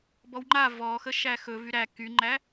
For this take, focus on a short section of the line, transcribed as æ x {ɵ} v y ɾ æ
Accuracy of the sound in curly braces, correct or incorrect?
correct